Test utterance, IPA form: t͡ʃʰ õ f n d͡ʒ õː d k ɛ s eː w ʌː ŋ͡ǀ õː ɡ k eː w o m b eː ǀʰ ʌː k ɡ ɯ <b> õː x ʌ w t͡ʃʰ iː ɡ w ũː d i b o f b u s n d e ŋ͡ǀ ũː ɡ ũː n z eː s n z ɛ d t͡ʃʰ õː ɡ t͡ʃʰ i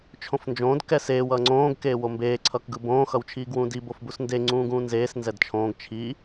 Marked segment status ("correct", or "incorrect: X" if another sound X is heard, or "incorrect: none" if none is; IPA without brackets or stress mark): correct